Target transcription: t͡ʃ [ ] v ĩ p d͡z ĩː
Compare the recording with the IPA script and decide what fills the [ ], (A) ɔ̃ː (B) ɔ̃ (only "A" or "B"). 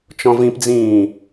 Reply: B